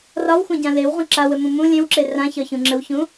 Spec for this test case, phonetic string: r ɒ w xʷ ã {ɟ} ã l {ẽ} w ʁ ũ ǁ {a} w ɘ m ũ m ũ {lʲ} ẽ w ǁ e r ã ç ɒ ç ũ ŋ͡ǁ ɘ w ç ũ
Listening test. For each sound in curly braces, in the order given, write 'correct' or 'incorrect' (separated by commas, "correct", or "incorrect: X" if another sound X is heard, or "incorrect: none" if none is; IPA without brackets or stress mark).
correct, incorrect: e, correct, correct